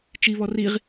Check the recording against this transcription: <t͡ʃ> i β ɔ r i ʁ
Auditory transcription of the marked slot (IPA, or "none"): t͡ʃ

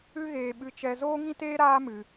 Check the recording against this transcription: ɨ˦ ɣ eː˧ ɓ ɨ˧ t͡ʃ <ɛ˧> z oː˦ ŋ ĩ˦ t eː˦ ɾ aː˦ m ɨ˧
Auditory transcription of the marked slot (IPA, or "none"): ɛ˧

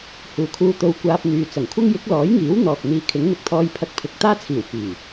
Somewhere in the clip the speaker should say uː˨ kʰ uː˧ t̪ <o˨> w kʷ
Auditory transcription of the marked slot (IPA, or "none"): o˧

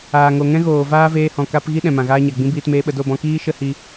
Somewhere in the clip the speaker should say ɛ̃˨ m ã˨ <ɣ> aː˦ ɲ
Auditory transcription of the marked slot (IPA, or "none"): ɣ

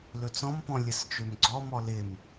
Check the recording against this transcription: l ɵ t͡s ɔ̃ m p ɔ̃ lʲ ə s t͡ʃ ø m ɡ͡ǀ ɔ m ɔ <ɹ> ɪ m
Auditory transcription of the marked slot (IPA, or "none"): l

